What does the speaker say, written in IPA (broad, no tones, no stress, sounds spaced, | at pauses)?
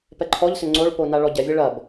p ɛ ǃʰ ɔ ʎ s ʏ ŋ͡ǀ o ɭ p o n a ɭ ɔ ɟ ɛ vʲ e ɭ ɐ b